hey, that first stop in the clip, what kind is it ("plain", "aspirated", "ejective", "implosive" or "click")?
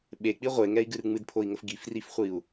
implosive